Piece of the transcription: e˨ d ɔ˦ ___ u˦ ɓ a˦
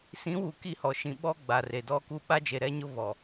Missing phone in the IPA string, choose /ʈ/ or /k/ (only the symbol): k